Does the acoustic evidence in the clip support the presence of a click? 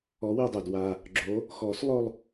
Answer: yes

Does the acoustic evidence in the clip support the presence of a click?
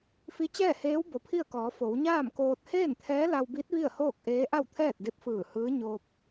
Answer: no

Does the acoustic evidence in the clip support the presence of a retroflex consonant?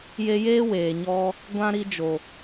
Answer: no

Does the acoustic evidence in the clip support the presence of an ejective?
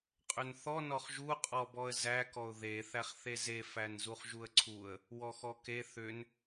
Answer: yes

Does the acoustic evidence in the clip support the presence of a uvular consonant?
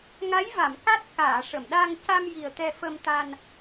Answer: no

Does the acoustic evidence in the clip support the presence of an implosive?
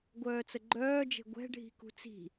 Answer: no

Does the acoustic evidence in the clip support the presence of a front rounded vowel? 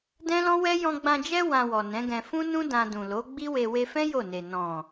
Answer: no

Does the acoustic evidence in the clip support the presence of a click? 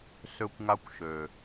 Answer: no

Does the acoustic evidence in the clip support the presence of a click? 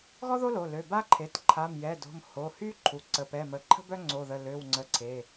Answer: yes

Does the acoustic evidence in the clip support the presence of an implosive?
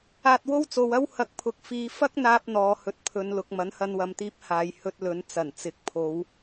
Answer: no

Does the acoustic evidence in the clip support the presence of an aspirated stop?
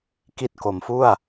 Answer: no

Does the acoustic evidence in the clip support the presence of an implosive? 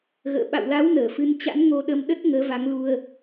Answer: yes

